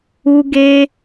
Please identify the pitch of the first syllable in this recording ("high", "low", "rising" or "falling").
high